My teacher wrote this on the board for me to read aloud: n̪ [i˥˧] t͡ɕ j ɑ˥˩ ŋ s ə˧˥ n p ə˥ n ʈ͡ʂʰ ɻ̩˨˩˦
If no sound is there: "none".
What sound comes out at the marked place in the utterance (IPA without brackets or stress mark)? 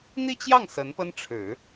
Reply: i˥˧